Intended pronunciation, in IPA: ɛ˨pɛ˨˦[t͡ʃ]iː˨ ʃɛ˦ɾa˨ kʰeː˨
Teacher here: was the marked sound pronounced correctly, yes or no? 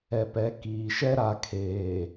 no